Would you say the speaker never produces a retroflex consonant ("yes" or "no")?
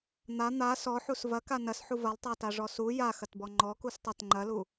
no